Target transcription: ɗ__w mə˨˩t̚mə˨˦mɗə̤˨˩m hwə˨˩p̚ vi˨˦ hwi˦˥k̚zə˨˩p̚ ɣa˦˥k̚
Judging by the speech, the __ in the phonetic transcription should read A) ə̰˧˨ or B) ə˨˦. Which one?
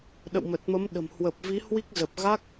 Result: A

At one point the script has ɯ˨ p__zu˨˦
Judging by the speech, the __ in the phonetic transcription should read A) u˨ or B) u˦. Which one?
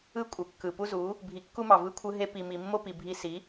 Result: B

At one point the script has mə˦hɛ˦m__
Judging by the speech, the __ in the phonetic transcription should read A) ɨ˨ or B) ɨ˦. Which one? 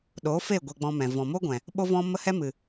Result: A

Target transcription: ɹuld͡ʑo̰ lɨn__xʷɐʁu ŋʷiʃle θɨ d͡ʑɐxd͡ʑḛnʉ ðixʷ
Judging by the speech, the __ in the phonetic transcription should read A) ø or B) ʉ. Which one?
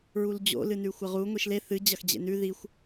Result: B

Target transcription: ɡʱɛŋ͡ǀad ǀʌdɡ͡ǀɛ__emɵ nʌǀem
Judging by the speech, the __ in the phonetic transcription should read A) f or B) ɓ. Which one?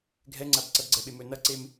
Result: B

